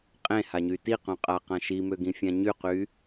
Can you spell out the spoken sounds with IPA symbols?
qʼẽhaɲy tiqœ̃qʼaqã ʃimøɡĩfʲã ɲyqy

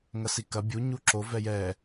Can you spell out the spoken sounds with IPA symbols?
ŋɐsikɐ bʲuɲu ǁo vɛjɛ

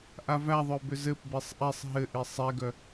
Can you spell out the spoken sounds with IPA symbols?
ʔavæðˤœ bʏzɘp besˤʔɛsˤ ɦɘʔi sˤɛɡœ

